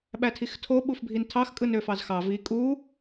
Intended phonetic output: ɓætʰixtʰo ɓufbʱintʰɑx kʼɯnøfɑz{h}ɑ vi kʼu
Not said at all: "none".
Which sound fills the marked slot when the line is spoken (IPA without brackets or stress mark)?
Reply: x